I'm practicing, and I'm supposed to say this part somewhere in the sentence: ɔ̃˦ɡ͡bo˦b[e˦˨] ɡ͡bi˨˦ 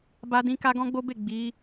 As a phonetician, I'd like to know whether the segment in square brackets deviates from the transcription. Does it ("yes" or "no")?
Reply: no